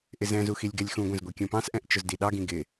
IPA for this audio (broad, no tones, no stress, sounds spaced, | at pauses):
ʔ ɪ z ɛ̃ z u x i lʲ ɡ ɛ lʲ x ũ ɡʷ ɛ̃ z ɡʷ i kʲ ũ p ɑ̃ s ʔ ɛ̃ ʔ t͡ʃ ʊ z d i ɗ ɑ ɡ ĩ ɡ ɪ